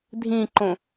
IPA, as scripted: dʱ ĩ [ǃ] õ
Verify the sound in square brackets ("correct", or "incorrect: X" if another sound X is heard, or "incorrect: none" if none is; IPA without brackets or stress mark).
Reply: correct